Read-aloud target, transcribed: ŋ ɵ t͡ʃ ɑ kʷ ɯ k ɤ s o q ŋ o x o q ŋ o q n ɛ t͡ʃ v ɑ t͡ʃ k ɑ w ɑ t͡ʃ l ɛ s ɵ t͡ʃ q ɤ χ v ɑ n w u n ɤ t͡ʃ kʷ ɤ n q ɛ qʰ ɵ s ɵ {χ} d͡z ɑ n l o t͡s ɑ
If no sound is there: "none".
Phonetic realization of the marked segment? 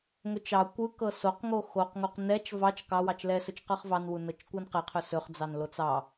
χ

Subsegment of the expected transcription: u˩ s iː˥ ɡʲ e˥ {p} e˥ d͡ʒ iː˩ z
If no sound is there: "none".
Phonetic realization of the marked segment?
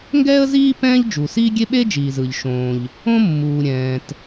ɓ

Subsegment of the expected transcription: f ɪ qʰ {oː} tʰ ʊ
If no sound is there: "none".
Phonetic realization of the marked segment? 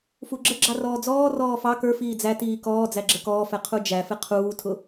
uː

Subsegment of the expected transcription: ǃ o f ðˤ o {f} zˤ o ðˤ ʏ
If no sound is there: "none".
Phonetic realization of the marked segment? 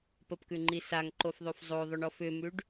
f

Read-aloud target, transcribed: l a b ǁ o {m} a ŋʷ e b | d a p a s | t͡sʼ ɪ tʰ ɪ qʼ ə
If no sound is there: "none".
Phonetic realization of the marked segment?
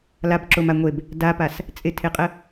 m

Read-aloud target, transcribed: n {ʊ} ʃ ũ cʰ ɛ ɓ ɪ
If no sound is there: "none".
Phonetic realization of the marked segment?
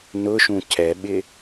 ʊ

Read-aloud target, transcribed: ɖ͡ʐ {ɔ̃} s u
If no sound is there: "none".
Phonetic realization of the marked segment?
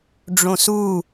õ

